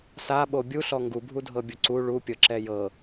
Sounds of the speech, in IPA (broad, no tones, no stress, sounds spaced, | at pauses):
s a ɓ o bʲ u ɬ ɔ ŋ ɡ u bʱ u dʱ ɤ bʲ o ǀ u ɭ u pʲ ɤ ǁ ɛ j ɤ